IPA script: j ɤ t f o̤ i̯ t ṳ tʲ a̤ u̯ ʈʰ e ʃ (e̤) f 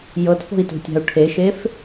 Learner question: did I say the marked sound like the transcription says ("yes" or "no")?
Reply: no